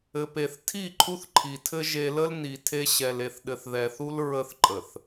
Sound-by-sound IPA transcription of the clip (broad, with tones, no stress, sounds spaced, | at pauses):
ɘ˨ p e˨ θ tʰ i˦˨ ǃʰ u˦ θ ǃʰ i˨ tʰ ɘ˦ ʒ e˦ l ə˦ l n i˨ tʰ e˦ ɕ ɛ˨ l e˨ θ ɗ ɘ˨ θ ð ɛ˨ θ u˦ l ɹ ə˦ θ ǃʼ ə˨ θ